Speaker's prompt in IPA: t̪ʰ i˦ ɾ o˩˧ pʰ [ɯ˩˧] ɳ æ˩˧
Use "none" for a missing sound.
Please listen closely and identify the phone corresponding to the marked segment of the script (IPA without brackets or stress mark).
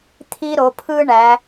ɯ˦